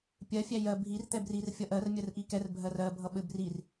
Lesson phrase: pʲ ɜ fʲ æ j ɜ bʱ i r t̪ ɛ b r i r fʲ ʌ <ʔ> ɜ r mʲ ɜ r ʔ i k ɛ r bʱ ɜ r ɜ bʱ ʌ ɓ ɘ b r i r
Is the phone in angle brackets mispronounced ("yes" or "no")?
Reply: no